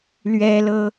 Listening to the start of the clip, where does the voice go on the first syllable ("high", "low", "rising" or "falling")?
high